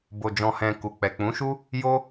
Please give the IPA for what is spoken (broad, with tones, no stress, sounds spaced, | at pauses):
b o˨ d͡ʒ ɔ̃˨ h ɛ̃˨ k u˨ k͡p ɛ˨ k͡p ũ˨˦ ʃ u˦ | j o˧